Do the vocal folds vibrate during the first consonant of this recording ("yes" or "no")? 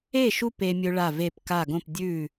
no